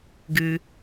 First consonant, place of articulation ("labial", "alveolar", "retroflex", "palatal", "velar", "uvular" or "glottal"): velar